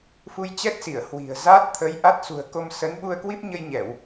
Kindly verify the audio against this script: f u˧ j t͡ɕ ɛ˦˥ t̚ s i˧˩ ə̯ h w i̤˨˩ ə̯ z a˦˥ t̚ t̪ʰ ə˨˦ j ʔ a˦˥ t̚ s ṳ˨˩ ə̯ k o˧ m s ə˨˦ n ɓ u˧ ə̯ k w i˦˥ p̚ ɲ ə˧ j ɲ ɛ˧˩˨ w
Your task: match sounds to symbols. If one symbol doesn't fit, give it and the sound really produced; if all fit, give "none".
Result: none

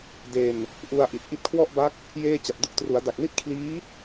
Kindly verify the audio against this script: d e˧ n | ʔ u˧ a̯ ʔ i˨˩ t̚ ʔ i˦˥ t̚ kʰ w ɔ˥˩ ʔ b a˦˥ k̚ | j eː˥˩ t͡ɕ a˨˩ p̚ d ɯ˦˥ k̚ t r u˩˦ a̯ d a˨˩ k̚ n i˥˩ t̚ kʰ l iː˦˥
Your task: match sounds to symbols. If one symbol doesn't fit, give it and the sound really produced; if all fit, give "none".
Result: none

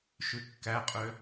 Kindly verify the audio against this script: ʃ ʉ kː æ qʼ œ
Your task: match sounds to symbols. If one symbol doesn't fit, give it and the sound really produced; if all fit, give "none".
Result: œ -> ø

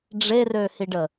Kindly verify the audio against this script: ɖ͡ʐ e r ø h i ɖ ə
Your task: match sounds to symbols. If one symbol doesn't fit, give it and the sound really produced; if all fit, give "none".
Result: none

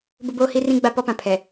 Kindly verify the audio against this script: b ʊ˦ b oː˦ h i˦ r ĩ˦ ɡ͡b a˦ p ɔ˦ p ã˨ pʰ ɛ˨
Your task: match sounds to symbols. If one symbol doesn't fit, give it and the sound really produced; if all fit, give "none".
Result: none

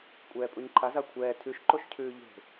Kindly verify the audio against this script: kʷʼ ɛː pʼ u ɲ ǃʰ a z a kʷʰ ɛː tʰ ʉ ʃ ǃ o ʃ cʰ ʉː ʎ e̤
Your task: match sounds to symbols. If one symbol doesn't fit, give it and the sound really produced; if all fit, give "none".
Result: none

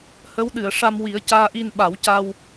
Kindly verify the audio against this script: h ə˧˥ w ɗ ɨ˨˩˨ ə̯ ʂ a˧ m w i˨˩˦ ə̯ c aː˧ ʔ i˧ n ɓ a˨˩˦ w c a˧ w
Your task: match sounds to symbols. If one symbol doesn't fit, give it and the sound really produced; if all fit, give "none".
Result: none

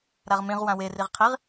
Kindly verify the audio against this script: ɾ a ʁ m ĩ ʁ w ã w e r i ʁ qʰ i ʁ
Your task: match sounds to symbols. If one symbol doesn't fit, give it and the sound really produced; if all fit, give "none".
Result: none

